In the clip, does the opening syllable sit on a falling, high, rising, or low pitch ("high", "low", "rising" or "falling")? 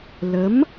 rising